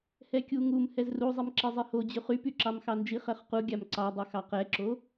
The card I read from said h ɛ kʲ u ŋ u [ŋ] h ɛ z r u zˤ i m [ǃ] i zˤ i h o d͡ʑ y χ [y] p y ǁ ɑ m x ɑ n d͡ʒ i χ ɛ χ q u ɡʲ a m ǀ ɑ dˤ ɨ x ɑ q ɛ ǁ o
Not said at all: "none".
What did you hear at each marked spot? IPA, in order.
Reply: m, ǁ, y

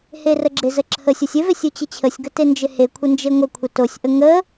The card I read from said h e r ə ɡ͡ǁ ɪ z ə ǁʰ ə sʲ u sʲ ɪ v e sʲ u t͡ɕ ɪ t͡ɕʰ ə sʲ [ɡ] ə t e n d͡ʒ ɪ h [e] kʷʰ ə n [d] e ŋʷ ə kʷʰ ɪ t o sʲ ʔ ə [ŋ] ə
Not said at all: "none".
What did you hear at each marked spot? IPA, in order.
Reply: ɡ, e, d͡ʒ, ŋ

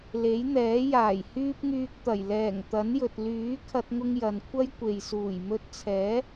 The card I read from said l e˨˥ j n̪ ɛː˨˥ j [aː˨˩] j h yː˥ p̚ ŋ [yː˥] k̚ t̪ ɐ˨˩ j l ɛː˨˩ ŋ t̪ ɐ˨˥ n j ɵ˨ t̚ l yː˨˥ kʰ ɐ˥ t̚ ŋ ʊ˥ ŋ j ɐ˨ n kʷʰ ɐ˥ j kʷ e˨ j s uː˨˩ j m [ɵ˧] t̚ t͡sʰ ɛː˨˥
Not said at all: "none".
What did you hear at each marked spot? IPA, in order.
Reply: aː˨˩, yː˧, ɵ˧

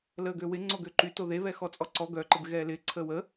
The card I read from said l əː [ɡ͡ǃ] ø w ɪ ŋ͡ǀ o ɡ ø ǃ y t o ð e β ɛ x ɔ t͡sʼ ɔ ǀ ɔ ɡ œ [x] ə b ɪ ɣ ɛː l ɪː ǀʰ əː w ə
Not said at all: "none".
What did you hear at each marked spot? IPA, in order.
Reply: ɡ, ǃ

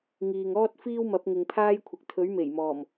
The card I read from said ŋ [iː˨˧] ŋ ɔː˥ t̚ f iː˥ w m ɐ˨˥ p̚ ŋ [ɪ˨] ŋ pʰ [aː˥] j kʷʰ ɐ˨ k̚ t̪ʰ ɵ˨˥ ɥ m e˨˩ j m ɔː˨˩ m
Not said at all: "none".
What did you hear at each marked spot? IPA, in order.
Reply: iː˨, ɪ˨, aː˥

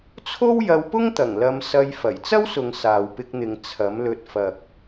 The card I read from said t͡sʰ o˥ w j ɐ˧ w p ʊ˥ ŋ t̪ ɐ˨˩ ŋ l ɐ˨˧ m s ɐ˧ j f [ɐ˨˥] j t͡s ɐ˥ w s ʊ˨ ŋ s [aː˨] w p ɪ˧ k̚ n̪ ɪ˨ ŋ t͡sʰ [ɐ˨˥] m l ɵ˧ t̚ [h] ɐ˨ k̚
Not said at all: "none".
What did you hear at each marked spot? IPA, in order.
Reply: ɐ˨˩, aː˨, ɐ˨˥, f

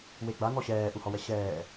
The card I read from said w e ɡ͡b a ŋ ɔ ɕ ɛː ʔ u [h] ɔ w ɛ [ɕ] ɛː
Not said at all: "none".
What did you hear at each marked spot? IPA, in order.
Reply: h, ɕ

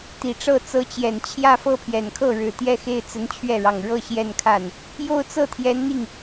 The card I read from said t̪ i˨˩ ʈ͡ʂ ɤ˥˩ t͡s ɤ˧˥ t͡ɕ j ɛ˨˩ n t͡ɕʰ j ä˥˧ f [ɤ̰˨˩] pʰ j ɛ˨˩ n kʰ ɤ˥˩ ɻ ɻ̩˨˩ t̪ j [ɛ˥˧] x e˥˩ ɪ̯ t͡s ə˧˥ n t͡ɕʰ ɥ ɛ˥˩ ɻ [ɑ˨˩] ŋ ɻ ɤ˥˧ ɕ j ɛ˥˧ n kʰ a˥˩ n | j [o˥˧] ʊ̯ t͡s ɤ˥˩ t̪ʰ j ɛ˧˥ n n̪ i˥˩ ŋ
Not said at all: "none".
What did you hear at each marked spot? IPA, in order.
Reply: ɤ˥˩, ɛ˥˧, ɑ˨˩, o˥˧

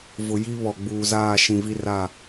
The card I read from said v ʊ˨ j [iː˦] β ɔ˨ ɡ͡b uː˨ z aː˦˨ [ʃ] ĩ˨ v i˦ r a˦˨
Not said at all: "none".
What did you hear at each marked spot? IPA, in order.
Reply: i˦, ʃ

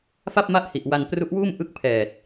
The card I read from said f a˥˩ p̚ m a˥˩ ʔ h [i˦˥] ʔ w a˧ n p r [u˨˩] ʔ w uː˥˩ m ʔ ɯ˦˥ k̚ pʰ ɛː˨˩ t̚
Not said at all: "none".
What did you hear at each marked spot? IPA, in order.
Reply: i˨˩, u˦˥

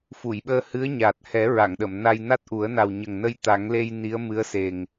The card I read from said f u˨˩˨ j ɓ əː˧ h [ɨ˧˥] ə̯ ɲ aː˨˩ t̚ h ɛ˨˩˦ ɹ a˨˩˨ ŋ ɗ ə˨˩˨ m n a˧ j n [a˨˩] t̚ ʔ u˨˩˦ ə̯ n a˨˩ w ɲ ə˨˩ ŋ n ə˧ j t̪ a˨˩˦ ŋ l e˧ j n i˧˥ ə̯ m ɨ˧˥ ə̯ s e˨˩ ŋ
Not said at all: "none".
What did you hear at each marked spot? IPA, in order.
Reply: ɨ˧˥, a˦˥

